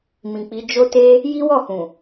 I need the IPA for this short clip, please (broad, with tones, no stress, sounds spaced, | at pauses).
m ĩ˨ k͡p i˨˦ d͡ʒ o˦ t e˦ | j i˦ w ɔ˦˨ h ũ˨